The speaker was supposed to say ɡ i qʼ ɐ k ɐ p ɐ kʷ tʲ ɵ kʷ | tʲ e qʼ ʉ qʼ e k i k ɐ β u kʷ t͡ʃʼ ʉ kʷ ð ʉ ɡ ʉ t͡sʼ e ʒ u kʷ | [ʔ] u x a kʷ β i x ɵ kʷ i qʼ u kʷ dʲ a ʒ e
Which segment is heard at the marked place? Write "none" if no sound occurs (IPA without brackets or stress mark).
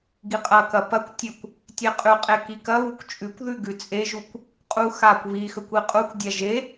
qʼ